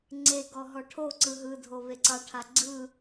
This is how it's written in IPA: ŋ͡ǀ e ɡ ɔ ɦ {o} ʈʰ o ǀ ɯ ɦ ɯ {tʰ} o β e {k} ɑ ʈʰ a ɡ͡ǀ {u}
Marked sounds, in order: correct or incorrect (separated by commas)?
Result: incorrect, incorrect, incorrect, incorrect